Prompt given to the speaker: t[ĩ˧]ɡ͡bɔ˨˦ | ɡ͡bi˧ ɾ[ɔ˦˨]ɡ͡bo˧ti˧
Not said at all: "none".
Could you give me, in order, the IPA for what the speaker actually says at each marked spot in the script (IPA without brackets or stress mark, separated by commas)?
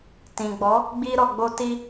ĩ˨, ɔ˨